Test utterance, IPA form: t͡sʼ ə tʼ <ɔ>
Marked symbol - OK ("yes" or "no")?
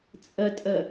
no